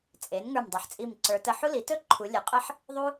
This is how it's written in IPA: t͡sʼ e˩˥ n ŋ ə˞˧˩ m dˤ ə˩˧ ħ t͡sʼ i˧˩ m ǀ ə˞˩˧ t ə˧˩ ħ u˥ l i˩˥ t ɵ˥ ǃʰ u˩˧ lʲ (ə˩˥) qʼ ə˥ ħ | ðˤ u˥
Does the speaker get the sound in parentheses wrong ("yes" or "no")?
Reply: no